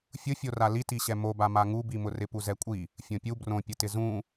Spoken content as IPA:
fʲʊfʲora litiɕɛ mobama ŋubimʊ rɪpuzɛkʷʼi | fʲõpʲu brõpʲʊtɪ zũ

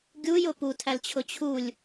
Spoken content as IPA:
ɡʲujʊ putʰælt͡ɕʰʊ t͡ɕʰulʲ

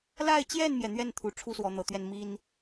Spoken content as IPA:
la˥˧ɪ̯t͡ɕjɛ˥˩nmjɛ˩ n̪ɥɛ˥˩nt̪ʰu˨˩ ʈ͡ʂʰu˥swɔ˧˥n̪ɤ˨˩t̪ɥɛ˥˩n mi˥n

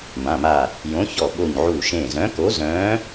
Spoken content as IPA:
mã˩˧˩ma˧˩ | jõ˨˥çɔ˧˩ɓo˧˩ɲ ʕuː˧˩ʃẽː˧˩ zœ̃˨˥ko˨˥ zœ̃ː˨˥

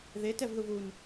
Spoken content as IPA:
ðetɛvðuv un

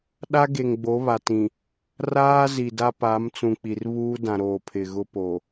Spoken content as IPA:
ɗa˦ɡe˨ŋɡ͡bo˨˦ βa˨tĩ˨ | raː˦ zi˨da˦pa˨˦m t͡sũ˨k͡pi˨rβuː˦ dã˨ɾoː˨ pʰɪ˨ɣʊ˦po˨

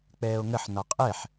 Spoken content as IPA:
k͡pɛːo̯ŋəħ nɒqʼɛħ

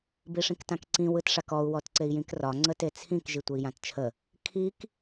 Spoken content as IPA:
biʂĩktãkǀĩ wɯtʂakɔu̯ wɔtǀei̯jĩkrɒ ŋ͡ǀətet͡sʰĩk ʒitʷəi̯jãtt͡ʃʰə | kʰik

